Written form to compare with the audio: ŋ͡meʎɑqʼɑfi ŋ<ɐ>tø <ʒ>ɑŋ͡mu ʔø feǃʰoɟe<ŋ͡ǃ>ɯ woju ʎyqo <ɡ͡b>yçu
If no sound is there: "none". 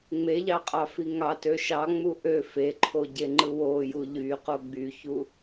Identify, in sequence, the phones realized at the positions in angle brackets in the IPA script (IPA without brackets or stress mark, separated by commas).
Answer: ɑ, ʃ, ŋ͡ǃ, ɡ͡b